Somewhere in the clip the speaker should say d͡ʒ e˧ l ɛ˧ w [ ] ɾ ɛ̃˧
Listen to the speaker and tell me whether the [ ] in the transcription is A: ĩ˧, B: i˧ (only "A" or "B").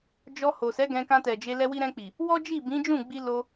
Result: B